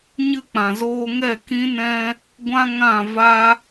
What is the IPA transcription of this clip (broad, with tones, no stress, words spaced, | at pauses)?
ɲɨ˧k͡pã˨zoː˧ŋɛ˦˨ kĩ˦nɛ̃˦ | ɡʷã˦ ŋã˦˨va˦